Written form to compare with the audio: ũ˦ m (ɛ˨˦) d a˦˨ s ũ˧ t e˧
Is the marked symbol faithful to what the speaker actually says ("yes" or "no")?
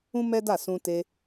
no